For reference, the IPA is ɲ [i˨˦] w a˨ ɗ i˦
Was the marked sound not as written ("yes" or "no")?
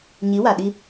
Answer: no